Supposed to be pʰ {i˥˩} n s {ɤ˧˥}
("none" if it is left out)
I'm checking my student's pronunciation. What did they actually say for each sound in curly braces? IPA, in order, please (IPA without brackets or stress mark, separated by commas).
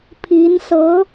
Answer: i˧˥, ɤ˧˥